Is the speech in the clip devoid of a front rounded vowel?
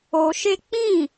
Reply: yes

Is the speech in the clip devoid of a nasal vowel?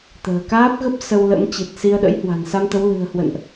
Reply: yes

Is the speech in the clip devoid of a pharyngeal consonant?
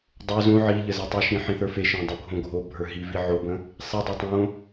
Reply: no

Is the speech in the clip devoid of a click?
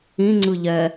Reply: no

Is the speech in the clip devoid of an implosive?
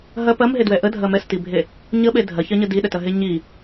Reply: no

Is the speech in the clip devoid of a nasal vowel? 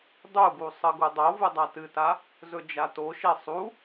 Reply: yes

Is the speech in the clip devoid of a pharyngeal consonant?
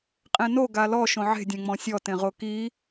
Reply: no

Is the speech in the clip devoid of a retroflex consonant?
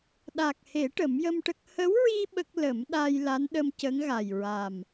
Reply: no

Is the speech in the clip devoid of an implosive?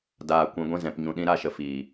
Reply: no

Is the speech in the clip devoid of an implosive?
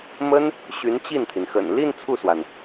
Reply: yes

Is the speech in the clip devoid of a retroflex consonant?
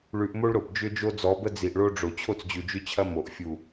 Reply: no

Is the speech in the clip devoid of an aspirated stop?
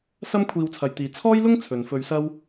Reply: no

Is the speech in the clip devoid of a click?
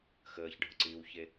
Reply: no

